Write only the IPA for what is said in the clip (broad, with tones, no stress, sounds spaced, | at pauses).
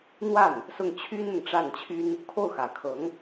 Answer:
n̪ w a˥˩ n | s ʊ˥˩ ŋ t͡ɕʰ y˥ n n̪ ʊ˨ ŋ ʈ͡ʂ a˥˩ n t͡ɕʰ y˥ n | kʰ o˥˩ ʊ̯ x ä˨˩ kʰ ɤ˧˥ ŋ